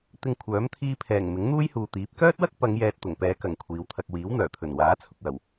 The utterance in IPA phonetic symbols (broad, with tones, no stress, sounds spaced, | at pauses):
t̪ ɪ˧ ŋ kʷʰ œː˨˥ m t̪ʰ iː˧ pʰ ɛː˨˩ ŋ m ɪ˨˥ ŋ n̪ uː˥ j h uː˨ t̪ iː˨˥ p̚ k œː˥ t̚ w ɐ˥ k̚ p ɐ˨˧ ŋ j ɛː˧ t̚ t̪ ʊ˨˩ ŋ p ɛː˨˧ k ɐ˨˩ ŋ kʷʰ iː˨˧ w t̪ʰ ɐ˧ k̚ w iː˨˥ w n̪ œː˨˩ t̪ʰ ɵ˨˩ n w aː˨˥ t͡sʰ ʊ˨ k̚ w ɐ˨˩ w